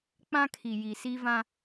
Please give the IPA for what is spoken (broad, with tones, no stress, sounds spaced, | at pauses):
k͡p ã˦ kʰ i˨ j i˨ s i˦ v ã˦